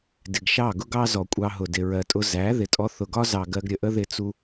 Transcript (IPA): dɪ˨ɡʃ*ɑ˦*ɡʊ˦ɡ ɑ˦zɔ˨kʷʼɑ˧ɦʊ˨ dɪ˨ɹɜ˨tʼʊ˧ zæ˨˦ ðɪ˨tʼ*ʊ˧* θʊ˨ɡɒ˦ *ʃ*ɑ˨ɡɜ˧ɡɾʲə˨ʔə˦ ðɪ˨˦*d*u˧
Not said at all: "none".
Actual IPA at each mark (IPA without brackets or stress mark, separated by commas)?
ɑ˦˨, ɔ˧, z, t͡s